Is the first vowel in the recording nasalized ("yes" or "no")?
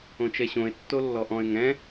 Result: yes